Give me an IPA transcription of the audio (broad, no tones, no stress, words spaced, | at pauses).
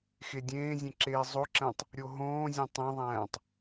xedʲẽːzʲẽ ǁeːzˤoǁæ̃tˤ | ɾʲoɦõːzʲõ tˤẽðˤæ̃ːtˤ